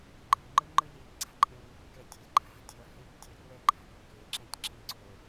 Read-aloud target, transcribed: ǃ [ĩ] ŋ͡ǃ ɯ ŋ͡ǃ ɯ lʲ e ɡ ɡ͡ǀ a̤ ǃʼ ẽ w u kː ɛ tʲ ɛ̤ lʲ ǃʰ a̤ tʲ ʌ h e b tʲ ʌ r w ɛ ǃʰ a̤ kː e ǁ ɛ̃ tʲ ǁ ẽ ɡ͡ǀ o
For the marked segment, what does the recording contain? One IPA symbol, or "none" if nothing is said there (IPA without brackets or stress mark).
i